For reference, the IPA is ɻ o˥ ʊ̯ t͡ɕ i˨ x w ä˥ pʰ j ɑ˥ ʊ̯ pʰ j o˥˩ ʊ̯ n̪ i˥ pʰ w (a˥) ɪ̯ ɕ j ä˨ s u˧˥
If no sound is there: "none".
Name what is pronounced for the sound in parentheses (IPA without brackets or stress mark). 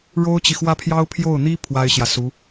a˥